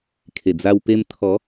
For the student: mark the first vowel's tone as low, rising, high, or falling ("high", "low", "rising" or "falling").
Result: low